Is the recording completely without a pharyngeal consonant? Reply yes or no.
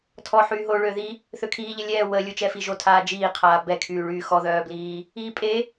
no